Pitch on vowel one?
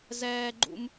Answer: high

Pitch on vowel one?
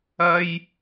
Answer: high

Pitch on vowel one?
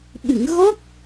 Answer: low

